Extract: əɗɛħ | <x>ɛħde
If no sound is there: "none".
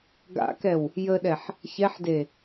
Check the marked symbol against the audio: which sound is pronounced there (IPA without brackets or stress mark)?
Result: ç